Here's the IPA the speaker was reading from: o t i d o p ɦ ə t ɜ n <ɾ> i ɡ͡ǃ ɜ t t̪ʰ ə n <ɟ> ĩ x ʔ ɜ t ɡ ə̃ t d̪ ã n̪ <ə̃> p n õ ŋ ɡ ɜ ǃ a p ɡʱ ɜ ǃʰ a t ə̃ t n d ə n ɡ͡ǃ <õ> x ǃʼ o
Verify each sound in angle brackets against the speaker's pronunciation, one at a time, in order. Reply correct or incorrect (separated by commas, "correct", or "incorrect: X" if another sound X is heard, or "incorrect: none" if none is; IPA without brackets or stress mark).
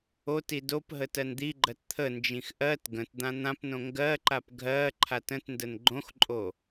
incorrect: d̪, incorrect: d͡ʒ, incorrect: ã, correct